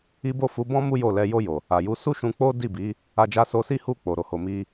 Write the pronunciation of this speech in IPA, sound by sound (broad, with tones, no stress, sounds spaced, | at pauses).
i˦ b o˦˨ f u˨˦ b ɔ̃˦ m u˦ j o˦˨ l ɛ˧ j o˧ j o˨ | a˨ j u˨˦ s u˦ ʃ ũ˧ k͡p o˦ d i˦˨ b i˨˦ | a˧ d͡ʒ a˧ s o˧ s i˦ h u˦˨ k͡p o˨ ɾ o˨ h o˨ m i˧